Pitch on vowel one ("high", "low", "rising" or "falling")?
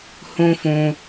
high